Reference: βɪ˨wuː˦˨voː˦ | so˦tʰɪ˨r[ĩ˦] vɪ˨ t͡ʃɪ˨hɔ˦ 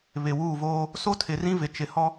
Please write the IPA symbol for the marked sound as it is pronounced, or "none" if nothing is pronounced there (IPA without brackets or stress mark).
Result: ĩ˦